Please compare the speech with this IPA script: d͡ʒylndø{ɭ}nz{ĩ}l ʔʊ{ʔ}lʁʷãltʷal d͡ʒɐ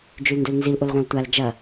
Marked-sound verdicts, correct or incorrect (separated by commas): incorrect, incorrect, incorrect